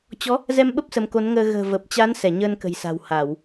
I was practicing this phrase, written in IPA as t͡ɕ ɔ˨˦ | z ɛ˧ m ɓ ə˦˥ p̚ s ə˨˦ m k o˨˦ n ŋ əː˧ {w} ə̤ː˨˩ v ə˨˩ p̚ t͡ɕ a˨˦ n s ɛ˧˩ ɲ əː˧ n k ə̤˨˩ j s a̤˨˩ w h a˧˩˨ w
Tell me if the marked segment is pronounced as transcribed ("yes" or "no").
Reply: no